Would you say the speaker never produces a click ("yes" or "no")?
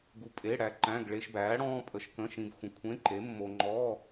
no